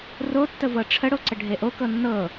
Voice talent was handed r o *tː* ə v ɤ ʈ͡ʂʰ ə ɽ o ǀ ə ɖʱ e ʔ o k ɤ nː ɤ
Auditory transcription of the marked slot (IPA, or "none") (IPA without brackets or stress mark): tː